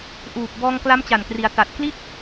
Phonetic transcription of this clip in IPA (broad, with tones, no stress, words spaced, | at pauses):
ʔuː˨˩p̚ bɔː˧ŋkla˦˥mt͡ɕa˨˩nkri˩˦a̯ ta˨˩t̚ kli˥˩t̚